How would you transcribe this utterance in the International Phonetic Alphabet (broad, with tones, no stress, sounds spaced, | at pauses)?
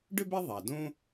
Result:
ɖ ʏ˥ b ɛ˥ ðˤ a˩ d õ˥